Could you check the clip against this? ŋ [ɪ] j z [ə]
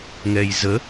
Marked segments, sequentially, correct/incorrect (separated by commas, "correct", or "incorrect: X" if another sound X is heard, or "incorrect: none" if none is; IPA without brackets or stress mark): incorrect: ɛ, correct